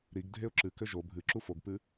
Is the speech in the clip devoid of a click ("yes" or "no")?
no